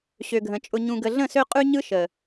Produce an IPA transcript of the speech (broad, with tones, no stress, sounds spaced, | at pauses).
ɕ ø˨ ɡʱ ə̃˨ t͡ʃʼ ʊ˨ ɲ ũ˨ ɡ ə˨ ɮ ə̃˦˨ s ø˦ qʼ ʉ˦ ɲ ɯ˦ ʃ ə˨